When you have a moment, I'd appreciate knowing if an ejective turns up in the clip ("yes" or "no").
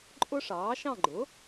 yes